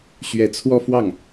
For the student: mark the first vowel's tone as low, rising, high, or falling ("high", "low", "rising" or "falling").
rising